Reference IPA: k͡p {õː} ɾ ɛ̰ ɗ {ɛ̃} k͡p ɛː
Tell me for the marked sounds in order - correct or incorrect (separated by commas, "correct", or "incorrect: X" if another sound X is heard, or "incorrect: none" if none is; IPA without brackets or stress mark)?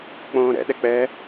correct, incorrect: ɛ